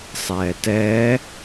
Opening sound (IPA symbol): sˤ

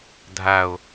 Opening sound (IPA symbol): dʱ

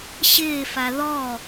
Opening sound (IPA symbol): ɕ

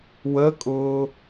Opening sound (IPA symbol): w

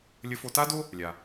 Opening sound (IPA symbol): lʲ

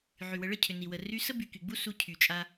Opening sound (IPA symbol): ʕ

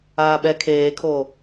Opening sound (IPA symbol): aː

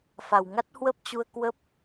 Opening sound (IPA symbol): f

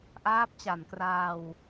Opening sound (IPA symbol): ʔ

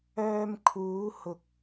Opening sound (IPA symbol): œː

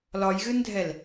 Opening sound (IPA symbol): l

